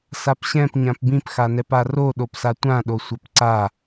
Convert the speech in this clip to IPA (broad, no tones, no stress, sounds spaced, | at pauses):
s a p ɕ ɛ̃ p ɲ ã p b ĩ p x a n ɛ p a r o ɗ o p s a tʷ ã ɗ o sʷ a p ǀ a